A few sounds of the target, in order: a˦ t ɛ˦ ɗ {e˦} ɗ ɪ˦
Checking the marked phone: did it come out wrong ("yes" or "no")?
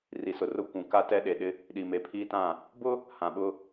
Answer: yes